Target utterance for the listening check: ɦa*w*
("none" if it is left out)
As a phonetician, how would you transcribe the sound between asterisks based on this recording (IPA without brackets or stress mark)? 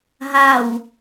w